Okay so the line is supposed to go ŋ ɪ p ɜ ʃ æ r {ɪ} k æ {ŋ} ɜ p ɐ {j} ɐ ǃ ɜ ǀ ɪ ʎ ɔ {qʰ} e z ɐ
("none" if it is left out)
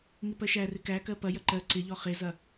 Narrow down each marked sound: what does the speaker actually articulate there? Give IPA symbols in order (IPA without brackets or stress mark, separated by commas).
ɪ, k, j, χ